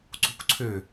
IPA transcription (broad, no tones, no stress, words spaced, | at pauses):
ǀṳkʷǀʰø